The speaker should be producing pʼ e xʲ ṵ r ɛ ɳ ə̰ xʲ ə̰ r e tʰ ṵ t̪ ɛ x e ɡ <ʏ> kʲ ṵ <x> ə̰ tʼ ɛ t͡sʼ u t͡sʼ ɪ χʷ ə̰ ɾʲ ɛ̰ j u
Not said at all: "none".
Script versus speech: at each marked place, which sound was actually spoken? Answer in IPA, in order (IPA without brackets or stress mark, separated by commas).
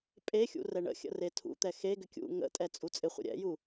ʏ, ŋ